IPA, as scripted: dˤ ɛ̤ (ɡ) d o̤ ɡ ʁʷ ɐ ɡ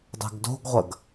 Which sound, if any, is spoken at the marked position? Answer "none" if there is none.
ɡ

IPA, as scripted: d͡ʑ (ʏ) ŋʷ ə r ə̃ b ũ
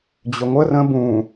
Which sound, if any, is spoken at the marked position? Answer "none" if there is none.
ʏ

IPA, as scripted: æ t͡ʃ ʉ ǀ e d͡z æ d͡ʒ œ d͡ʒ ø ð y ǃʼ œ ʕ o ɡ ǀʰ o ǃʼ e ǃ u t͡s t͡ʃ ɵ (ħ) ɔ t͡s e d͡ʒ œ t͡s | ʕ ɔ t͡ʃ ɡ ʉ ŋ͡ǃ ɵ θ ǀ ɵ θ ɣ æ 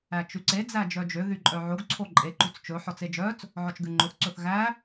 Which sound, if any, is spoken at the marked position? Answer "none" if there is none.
ħ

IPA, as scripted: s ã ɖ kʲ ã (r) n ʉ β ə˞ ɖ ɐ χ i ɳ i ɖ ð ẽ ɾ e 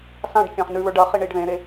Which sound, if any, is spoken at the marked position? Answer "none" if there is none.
χ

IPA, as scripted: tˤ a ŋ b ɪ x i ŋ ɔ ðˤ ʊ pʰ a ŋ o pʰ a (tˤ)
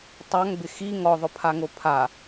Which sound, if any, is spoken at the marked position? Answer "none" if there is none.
none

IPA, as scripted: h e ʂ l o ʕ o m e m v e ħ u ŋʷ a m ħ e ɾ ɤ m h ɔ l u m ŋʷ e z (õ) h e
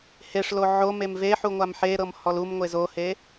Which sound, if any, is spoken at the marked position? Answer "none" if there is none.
o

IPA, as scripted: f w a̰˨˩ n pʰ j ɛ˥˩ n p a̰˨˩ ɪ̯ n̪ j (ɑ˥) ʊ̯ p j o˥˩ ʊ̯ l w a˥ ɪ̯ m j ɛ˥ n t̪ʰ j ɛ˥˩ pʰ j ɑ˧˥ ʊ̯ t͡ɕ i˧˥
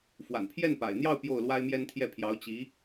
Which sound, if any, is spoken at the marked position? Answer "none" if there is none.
ɑ˥˧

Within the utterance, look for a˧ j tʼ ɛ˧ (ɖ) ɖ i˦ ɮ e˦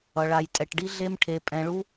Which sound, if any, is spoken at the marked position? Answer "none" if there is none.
ʈ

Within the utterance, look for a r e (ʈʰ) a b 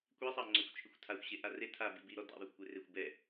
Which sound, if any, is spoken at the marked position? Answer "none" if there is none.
tʰ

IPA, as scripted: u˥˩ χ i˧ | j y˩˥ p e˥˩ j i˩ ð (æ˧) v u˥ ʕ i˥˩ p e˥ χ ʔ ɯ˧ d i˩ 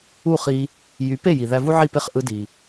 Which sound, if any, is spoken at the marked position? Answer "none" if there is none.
æ˧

